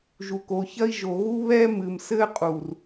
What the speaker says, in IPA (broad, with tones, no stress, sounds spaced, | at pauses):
ʒ u˨ k o˨ ç ɐ˦ i̯ ʒ o˨ ɣ u˦ β ɛ˦ m ɨ˨ m s ɘ˦ qʼ u˨ r